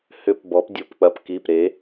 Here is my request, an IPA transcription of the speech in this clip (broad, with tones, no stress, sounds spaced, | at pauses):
h ʏ˧ p b ɔ˨˥ p dʲ o˧ p k͡p ɐ˨˥ p k i˩˧˩ p ɾ e˨˥